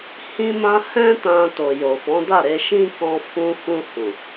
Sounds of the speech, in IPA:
hĩ˧mã˧ hɛ̃˧tã˨ to˨jo˨fɔ̃˨˦da˦˨ ɾe˧ʃĩ˦kɔ̃˧ fũ˧fũ˧hũ˨

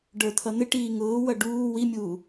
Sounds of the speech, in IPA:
ɖə˞t̪ʰʌn̪ɪʈiː ŋʊːwʌ ɖuː wimʲuː

